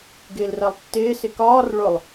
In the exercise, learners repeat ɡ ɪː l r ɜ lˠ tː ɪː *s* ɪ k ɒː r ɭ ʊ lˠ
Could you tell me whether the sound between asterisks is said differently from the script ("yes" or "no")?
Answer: no